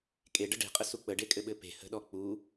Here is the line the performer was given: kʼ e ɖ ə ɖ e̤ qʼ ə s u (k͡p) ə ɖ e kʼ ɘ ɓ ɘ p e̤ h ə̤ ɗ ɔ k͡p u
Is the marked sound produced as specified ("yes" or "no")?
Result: yes